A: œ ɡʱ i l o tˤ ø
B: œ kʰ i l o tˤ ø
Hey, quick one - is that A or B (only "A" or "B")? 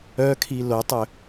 B